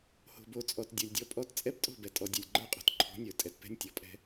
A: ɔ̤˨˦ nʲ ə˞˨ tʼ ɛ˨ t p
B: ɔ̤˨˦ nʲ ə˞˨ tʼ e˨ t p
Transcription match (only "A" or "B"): A